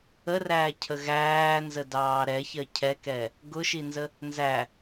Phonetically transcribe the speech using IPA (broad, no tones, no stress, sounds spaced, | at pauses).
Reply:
ə r æː cʰ ə ɣ æː n z ə d ɑː ɾ ɛ ç ɜ cʰ ɛ k ɛ | ɡ ʊ ʃ i n z ə | n z æ